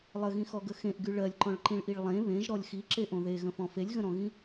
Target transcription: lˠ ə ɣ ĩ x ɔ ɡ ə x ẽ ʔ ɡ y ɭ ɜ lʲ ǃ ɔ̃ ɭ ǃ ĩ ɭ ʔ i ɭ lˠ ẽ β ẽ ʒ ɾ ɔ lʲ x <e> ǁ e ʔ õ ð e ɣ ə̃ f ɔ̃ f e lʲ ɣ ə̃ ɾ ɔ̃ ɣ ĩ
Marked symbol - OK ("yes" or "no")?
no